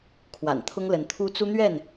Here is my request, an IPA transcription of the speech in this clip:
kʰwa̰˨˩nt̪ʰʊ˦ŋlə˨˦nt̪ʰu˦ t͡su˦n̪ɥɛ˥˨n

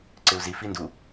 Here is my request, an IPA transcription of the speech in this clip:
ǀɪu̯zi findu

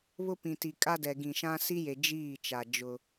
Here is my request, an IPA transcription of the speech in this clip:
βʊ˦pĩ˨ti˨ kʼa˦dɛ˨ ɡĩ˨ʃã˦ si˦je˨ d͡ʒiː˦˨t͡ʃa˨ d͡ʒʊ˦

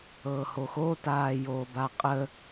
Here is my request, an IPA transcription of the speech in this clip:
ɤːhoxo taːjoːbaqʼə

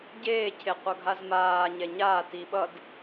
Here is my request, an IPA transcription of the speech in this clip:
ɟeːcʰeqʷʌɡʱaz maːɲɛ ɲaːti ɓʌd

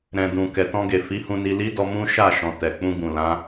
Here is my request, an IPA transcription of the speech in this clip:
ɾɛ̃˨dũ˨kɛ˨ tɔ̃˧ɡe˨ fi˨˦hũ˧ni˧ li˦dɔ˧ mũ˦ ʃa˦˨ʃɔ̃˨ tɛ˨k͡pũ˧ɡũ˨ lã˨˦

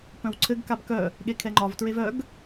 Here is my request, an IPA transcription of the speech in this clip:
pœ̃wǀʰɘɡkab kœ | ɠekʰɛŋ͡ǃɒvtɹev œɡ

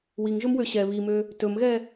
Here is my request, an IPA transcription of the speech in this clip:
wiŋʒɵmwø ɕɛ βimø | tɵmɣɛ

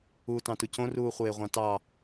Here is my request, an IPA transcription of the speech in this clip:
uːtɑ̃tucõ ruːχʷeːʁʷɑ̃tɑ

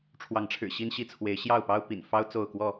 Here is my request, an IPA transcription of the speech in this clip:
ʈ͡ʂʰwɑ˨˦ŋʈ͡ʂʰɻ̩˨˩ ɕi˦nɕi˦t͡sʰwe˨˦ɪ̯ ɕjɑ˥˨ʊ̯pɑ˦ʊ̯ pḭ˨˩n fɑ˦ʊ̯ t͡so˥˨ʊ̯kwɔ˥˨

